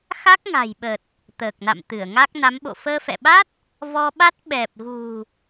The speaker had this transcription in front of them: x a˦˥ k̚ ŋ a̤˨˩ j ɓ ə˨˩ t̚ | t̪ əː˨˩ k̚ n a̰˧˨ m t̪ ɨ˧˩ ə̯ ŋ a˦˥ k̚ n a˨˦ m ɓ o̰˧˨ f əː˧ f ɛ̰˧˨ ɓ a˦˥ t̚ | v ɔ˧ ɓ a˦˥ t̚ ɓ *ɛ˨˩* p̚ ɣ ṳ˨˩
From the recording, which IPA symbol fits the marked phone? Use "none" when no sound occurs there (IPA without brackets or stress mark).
ɛ˨˩